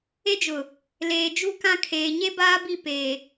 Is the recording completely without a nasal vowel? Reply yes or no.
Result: no